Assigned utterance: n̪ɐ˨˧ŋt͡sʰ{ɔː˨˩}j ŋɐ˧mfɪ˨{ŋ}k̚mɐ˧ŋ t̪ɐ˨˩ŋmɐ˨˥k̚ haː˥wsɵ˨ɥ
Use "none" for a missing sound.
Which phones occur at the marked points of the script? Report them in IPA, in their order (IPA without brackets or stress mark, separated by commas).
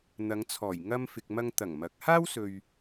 ɔː˨˩, none